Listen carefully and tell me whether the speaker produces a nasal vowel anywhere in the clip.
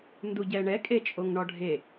no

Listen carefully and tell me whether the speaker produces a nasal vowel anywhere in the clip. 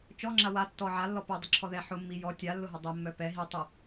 no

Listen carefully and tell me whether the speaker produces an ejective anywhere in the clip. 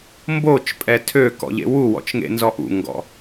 yes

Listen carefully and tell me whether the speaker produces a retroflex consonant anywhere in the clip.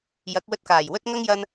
no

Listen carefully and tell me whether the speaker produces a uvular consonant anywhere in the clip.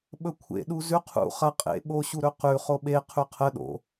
yes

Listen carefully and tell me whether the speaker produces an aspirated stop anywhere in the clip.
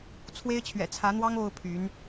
yes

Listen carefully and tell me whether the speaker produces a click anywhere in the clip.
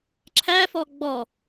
yes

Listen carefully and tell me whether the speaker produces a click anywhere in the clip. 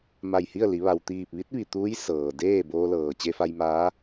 no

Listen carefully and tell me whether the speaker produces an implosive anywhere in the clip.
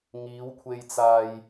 no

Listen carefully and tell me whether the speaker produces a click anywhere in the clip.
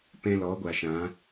no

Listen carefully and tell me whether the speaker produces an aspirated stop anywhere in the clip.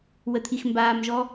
yes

